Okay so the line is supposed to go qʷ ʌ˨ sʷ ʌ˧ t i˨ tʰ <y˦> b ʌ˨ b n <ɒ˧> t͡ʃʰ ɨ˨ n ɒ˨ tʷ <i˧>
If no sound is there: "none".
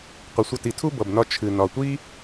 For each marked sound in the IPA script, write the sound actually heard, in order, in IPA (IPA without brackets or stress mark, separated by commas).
u˦, ɒ˧, i˦